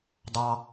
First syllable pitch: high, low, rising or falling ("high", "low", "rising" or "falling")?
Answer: low